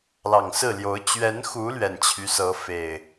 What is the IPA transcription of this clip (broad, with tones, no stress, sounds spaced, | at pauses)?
l ɑ˨˩ ŋ s ɹ̩˥˨ l j o˨˦ ʊ̯ t͡ɕ ɥ ɛ˨˦ n x u˨˦ l ɥ ɛ˨˩ n t͡ɕʰ y˦ s ɤ˨˦ f e˨˩ ɪ̯